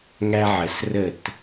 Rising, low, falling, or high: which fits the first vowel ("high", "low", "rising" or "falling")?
high